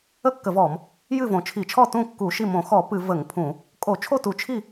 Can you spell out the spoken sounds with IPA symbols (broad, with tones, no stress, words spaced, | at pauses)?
ə˥˩kːə˧˩˧vɔ˧˩˧m | jɨ˥˩võ˧˩˧t͡ʃʰi˧˩˧t͡ʃʰɔ˥˩ tũ˥˩ kːu˧˩˧ʃi˥˩ mõ˧˩˧xɔ˧˩˧ pɨ˧˩˧ və˧˩˧ŋpʰũ˧˩˧ | kʼo˧˩˧ t͡ʃʰo˥˩tu˧˩˧ t͡ʃʰi˥˩